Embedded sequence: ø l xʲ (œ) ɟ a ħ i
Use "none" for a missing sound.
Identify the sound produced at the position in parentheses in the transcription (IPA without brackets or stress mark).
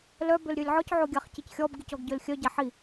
œ